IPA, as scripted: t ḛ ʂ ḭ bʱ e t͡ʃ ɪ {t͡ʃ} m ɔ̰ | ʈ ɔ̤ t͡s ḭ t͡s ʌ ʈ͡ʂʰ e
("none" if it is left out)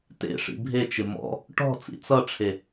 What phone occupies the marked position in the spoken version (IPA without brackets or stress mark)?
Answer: none